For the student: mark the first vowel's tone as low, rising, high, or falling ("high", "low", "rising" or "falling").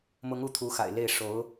rising